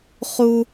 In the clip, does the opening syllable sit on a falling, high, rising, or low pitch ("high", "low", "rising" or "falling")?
high